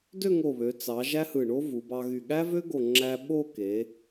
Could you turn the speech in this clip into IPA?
dø˥˧ŋo˧˩βø˩˧ t͡sɑ˩˧ ʒæ˥hɯ˧˩ɳo˥ vu˩˧bɑ˧ɣy˧˩ ɠæ˥vø˥ɡo˧˩ŋ͡ǁæ˧ ɓo˥˧ ke˩˧

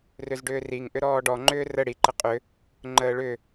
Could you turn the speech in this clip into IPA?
rʏzɖʏːriŋ ʔʏɾɔːɖɔ ŋ͡ǃʏːrə ɽi ǃəqʼʏ | ŋ͡ǃəːɭʏ

